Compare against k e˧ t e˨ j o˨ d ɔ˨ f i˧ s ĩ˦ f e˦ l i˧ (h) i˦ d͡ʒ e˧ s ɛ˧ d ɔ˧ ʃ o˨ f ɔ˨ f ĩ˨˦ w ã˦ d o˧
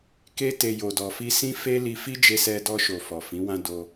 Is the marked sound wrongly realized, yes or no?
yes